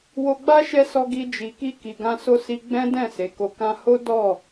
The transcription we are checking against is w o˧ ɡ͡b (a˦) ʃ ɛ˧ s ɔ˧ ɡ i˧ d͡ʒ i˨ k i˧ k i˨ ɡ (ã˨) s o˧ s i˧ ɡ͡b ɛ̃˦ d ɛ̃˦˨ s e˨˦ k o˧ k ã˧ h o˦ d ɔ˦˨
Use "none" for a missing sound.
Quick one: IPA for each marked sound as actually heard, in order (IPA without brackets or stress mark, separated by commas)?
a˦, ã˧